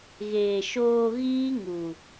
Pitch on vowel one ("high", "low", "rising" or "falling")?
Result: low